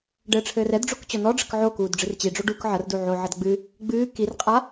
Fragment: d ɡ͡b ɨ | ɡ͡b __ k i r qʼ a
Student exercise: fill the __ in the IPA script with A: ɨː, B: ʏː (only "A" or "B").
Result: A